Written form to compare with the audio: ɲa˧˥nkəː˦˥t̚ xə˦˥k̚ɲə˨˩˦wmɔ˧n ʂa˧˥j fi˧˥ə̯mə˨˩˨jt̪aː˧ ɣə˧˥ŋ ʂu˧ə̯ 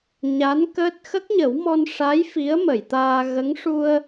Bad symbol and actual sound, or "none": none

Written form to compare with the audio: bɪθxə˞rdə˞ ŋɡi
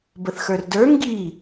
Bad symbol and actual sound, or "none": ɪ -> ə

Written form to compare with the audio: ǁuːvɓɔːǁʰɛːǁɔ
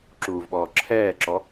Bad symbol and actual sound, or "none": none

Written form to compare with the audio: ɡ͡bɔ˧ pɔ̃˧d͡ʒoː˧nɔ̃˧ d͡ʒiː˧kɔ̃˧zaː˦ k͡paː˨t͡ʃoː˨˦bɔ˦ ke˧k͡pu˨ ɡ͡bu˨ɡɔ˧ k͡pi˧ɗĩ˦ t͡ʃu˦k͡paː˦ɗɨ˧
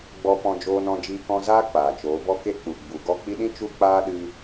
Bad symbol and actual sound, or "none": none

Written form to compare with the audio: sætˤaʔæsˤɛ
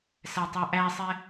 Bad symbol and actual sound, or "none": none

